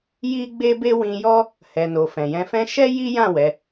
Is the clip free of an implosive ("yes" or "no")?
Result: yes